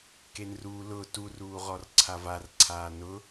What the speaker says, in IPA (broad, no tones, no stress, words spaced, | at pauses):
kenru lʊ turuː ʁɔrǀʰavarǀʰaː nʊ